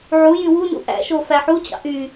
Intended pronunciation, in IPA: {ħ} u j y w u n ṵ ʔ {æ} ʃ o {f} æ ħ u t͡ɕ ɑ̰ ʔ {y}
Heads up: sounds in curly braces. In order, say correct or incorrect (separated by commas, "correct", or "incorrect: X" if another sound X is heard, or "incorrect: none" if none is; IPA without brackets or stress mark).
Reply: incorrect: ʕ, incorrect: æ̰, correct, correct